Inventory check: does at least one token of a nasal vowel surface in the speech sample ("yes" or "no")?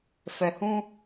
yes